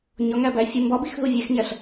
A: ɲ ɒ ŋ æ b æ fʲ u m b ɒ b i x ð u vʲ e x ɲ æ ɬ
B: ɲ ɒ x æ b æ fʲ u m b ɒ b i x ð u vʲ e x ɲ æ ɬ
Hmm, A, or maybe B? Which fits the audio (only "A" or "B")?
A